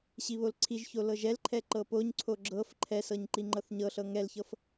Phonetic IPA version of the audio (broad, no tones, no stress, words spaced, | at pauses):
ɕiβolǀʰiʒço lɤʒɛlǃʰɛ ǃɤpoɲǀʰo ɡ͡ǁɤf ǃʰɛsɤɲ ǃiŋ͡ǃɤθɲɤɬɤ ŋɛlçɤf